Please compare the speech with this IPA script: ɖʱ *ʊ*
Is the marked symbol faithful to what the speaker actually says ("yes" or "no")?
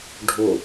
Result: yes